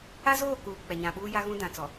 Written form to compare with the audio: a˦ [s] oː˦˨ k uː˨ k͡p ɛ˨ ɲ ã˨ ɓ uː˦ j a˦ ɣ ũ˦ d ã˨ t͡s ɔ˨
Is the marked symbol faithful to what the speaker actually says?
no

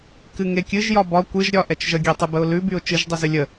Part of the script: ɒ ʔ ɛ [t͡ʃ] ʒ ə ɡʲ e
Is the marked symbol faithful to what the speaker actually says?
yes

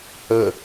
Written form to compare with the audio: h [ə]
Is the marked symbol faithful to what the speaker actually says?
yes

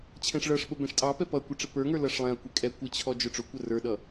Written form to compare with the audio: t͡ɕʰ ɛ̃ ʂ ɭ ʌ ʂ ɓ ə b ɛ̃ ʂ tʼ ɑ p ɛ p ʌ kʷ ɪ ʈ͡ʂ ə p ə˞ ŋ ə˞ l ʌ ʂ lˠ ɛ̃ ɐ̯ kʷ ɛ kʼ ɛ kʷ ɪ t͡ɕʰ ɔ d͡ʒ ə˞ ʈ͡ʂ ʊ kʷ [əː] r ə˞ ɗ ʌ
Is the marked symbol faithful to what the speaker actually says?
no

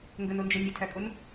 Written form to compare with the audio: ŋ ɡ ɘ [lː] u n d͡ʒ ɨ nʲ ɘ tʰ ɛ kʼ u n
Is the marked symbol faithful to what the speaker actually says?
no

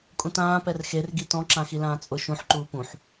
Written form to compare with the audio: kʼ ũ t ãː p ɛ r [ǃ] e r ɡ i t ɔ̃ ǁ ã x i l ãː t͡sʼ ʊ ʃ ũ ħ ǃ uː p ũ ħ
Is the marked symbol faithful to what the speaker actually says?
no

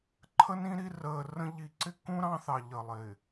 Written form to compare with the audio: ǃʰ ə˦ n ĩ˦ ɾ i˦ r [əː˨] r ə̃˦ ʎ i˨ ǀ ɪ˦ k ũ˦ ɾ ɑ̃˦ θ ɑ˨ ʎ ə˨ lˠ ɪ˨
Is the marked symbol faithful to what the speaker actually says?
yes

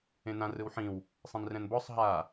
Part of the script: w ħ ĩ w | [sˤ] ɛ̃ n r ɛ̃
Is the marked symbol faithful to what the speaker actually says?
yes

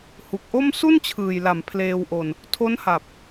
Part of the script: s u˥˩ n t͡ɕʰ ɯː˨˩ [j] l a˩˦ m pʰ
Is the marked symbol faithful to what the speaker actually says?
yes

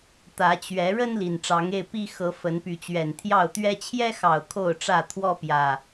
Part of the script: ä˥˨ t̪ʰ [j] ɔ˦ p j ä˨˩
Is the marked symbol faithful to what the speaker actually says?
no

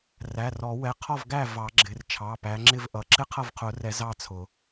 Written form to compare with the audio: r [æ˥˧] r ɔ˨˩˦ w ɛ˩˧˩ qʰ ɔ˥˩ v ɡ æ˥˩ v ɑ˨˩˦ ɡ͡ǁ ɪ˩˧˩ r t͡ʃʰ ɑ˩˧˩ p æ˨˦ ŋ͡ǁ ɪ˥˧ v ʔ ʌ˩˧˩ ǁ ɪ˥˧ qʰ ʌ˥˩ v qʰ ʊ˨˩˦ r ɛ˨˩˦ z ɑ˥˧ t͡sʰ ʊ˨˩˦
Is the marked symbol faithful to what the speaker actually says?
no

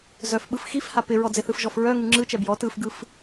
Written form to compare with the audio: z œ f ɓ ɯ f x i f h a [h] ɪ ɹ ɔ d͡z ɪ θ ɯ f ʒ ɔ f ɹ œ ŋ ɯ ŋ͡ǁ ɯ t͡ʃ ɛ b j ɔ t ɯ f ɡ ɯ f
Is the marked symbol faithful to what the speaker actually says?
no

